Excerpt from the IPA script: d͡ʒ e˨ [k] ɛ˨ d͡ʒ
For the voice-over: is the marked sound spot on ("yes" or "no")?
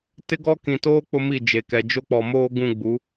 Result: yes